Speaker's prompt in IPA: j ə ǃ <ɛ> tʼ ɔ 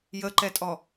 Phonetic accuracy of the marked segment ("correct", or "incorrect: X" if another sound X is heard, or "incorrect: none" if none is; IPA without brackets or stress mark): correct